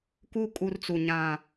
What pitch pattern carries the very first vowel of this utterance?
high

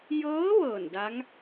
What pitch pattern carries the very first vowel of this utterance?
rising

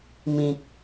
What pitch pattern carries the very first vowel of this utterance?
low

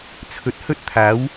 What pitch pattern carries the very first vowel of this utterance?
rising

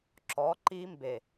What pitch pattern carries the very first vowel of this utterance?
rising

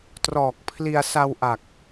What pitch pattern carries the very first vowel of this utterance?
low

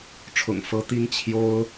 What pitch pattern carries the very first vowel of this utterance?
low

